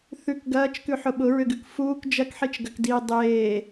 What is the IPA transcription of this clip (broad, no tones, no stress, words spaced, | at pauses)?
θʉk ɡɐːt͡ʃkʉħʊ ɓʊɹʏɡʉk fuːk d͡ʒɐkħit͡ʃɡɐkdiː dˤeː